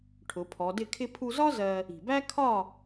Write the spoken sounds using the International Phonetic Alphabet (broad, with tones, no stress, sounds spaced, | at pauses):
ʈʰ ʊ˩˧ pʰ ɔ˩˧ d ɪ˥˨ kʰ ɪ˧ pʰ u˧ z ɒ˥ z ɜ˧ | i̤˩ b æ˥ kʰ ɒ˥˨